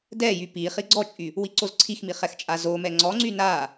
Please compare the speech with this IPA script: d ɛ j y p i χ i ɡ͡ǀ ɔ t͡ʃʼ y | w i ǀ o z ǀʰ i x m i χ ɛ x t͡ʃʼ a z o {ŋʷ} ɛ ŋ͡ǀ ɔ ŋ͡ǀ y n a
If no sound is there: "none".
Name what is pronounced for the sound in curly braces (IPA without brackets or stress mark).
m